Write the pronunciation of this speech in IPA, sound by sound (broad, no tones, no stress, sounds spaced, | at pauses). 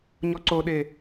ɲ ɔ ǀ o ɗ e